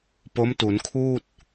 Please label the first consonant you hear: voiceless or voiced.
voiceless